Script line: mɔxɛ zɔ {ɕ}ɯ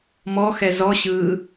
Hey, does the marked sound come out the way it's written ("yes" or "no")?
yes